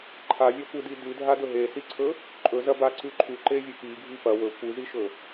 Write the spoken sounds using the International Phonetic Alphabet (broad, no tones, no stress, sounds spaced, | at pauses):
ǃʰ a vʲ a kʷ ɨ d i d ʉ dʱ a d ɵ ɦ e s i ǀʰ ɵ | ǃʼ ɵ z ɐ b a ǀ ʉ ǃʰ ʉ ǃ e vʲ ɵ p i ɡʱ i p ɐ w ɵ kʷ ɨ z i ʃ ɵ